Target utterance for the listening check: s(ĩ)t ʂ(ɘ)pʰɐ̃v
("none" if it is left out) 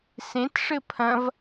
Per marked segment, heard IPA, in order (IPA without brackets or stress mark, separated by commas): ẽ, ɘ